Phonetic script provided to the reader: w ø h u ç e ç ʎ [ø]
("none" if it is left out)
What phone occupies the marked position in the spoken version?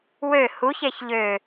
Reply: ø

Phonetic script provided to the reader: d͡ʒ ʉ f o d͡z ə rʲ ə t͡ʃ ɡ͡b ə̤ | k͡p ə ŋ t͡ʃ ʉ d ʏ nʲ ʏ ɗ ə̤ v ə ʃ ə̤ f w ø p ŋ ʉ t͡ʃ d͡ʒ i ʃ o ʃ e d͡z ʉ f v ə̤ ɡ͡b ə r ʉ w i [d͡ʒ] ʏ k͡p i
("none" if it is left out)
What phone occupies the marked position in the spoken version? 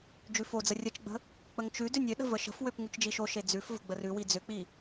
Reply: d͡z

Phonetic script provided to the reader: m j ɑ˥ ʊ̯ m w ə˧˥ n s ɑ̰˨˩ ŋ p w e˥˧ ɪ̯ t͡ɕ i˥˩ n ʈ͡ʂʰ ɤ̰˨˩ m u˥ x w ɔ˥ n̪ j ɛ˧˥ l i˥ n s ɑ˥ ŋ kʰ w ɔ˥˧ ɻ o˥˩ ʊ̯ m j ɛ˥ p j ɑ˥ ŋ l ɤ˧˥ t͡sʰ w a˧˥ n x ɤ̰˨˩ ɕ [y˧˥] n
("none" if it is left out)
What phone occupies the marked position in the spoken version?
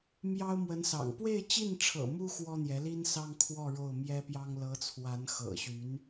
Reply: y˧˥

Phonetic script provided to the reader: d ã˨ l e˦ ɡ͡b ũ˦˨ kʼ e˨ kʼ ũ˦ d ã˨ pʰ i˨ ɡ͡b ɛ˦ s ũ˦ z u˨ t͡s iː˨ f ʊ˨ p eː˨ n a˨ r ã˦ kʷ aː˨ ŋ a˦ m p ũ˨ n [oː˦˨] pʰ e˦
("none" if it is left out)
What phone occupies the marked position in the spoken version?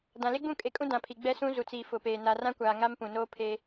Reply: oː˦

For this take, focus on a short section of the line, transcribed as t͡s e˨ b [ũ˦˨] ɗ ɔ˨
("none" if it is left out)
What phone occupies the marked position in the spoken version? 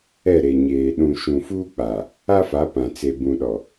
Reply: ũ˨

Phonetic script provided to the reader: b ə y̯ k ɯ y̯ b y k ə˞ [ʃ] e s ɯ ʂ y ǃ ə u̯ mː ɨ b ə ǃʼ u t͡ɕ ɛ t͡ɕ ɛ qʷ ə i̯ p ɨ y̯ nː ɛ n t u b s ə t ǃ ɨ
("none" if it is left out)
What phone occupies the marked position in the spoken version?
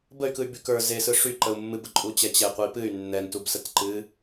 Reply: z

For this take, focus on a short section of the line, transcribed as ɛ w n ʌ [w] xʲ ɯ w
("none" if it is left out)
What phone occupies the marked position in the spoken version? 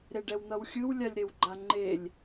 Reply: w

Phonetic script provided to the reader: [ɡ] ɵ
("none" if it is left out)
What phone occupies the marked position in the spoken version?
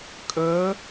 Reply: kʼ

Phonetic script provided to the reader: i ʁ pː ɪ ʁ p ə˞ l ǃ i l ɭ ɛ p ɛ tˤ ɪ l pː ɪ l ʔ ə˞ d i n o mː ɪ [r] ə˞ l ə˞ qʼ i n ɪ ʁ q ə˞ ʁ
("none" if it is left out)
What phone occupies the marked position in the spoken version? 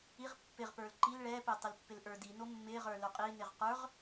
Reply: ʁ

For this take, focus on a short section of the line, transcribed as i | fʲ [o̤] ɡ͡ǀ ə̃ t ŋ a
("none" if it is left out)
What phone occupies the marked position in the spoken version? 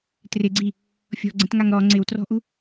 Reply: ɔ̤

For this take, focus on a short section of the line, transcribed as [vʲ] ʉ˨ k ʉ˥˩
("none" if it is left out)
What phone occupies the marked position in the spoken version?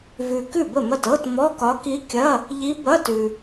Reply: v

